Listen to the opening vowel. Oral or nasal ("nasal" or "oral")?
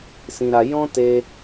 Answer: nasal